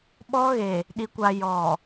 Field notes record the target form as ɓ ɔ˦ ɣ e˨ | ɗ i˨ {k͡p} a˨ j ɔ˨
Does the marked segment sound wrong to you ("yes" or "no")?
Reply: yes